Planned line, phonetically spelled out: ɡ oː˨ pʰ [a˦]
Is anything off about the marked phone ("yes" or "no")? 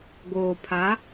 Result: yes